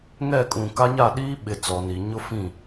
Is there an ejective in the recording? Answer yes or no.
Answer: yes